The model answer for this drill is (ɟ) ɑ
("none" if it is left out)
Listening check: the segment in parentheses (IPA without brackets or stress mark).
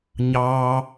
ɲ